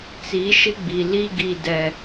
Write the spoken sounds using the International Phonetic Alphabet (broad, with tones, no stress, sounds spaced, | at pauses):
t͡s i˨˦ ʃ ɪ˦ ɡ͡b i˨ l i˦ ɡ i˦ d ɛ˦